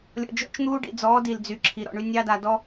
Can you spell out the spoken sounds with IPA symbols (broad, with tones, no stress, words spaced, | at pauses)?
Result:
lʲɔ̰˨d͡ʒɔ̰˦t͡ʃn̪uː˦ ɖḭ˨d͡zɔː˨˦ di˨ld͡zy˨ ǁʰi˨ɾɔ̰˨ɳy˦ nʲɑ˦da˨ dɔ˦